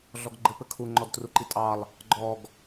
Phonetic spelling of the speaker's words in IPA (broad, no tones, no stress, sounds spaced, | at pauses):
ɮ ɔ ɡ ɡ͡ǃ ɘ p ɘ kʰ u ŋ͡ǃ ɔ d t r u ǃ i tʼ ɑ lˠ | ɡ͡ǃ ɔ ɡ